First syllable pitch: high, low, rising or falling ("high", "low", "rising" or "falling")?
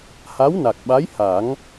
rising